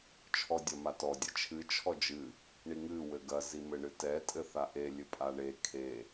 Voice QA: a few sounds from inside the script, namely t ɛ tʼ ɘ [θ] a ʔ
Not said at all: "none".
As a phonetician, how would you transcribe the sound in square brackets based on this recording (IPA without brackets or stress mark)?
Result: θ